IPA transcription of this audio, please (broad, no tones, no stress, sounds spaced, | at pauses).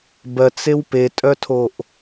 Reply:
b ɜ t͡s e w p e tʼ œ tʰ o ʔ